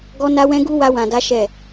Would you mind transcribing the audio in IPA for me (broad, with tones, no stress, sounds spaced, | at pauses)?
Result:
ɡ ɔ˦ n a˦ w ɛ̃˦ ɡ u˦ w a˦ w ã˧ d a˦ ʃ ɛ˦˨